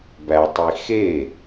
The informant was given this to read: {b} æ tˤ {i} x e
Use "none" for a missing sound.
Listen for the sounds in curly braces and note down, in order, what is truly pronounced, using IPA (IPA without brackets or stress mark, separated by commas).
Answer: b, i